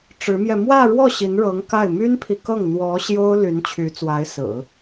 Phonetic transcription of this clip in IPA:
ʈ͡ʂɻ̩˧˥mjɛ˧ mwä˥˧ɻwɔ˥˩ ɕi˧˥nɻɤ˧˥ŋka˥˩ɪ̯ my˥npʰi˨kɤ˥˩ŋ n̪wɔ˧˥ ɕjo˥ʊ̯ ly˧˥nt͡ɕʰy˧˥t͡swa˧˥ɪ̯ sɹ̩˨˩˦

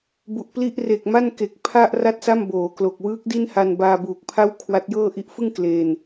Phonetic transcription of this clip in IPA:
bu˨˩ʔpli˥˩ʔ re˨˩k̚ma˥˩nke˨˩k̚ pʰa˥˩ʔ ra˥˩t̚sa˥˩m boː˩˦klo˨˩k̚ wɯː˦˥k̚ di˥˩nha˧nbaː˧ buː˨˩k̚pʰa˥˩w kʰwa˦˥t̚jɤː˥˩ ʔi˦˥ʔfɯ˥˩ŋ kleː˧n

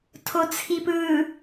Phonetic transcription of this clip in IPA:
tʰot͡sʰipɯ

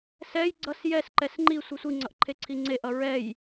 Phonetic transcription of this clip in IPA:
sɛj ɡ͡ǀʌs jɛsǃɛs ŋ͡ǃi sʷɯsʷiŋ͡ǀʌʔ ǃʰeǀʰiŋ͡ǀeʔʌ ɹɛj

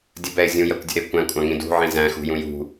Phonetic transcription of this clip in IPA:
dʲəbɛɪ̯ zʲũjɜkʷdʲə̤ ɾɪ kʷæ̃kʷʼɑ̃ŋĩ dṳʕĩ zæ̃xṳjũ jṳ

